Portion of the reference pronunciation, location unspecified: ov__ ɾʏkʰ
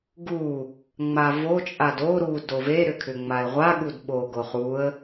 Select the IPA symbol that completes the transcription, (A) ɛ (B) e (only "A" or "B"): B